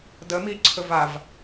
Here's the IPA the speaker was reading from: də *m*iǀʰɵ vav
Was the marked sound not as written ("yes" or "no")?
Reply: no